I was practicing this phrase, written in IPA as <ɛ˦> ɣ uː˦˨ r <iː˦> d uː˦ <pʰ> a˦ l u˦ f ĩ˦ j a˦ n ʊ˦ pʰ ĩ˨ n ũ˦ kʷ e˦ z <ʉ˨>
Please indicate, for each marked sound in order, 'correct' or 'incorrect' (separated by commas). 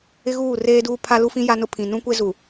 incorrect, incorrect, correct, incorrect